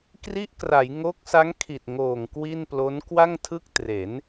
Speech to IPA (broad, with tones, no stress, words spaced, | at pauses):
kri˦˥ʔkra˩˦j ŋo˦˥k̚sa˦˥ŋ kʰi˨˩t̚ŋoː˨˩ŋ kwi˥˩nplo˦˥n kwa˥˩ŋtʰɯ˥˩k̚ tre˩˦n